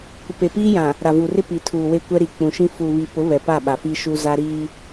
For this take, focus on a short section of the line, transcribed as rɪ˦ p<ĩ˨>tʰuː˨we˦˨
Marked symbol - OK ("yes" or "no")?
no